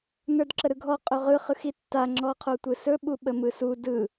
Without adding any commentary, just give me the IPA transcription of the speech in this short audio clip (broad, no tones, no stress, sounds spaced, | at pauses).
n ə˞ d ǁ ə ɾ ɯ ɡʱ ɔ qʼ ɵ ʁ ɯ χ ɯ x i tː a ŋ͡ǁ ɔ qʰ o tʷ ɯ s ɵ ɓ u ɓ ə m ɯ s u d ɯ